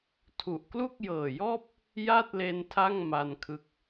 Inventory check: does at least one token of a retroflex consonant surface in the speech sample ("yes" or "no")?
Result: no